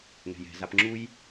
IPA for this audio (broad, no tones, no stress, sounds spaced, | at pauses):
ŋ ɛ̤ j ɛ̤ z a p ŋ͡ǁ u j